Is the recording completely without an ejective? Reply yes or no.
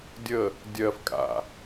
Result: no